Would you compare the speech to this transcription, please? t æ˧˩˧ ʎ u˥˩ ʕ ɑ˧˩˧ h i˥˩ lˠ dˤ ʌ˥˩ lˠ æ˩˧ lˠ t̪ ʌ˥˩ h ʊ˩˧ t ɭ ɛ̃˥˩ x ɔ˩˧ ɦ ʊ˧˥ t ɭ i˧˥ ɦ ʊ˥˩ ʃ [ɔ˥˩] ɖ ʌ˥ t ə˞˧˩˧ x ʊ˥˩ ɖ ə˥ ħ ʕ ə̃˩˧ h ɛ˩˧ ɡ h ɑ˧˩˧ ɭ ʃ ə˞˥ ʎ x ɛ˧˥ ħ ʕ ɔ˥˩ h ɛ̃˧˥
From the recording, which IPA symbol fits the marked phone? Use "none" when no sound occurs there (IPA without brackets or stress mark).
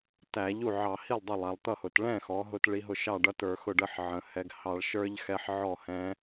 ɑ˥˩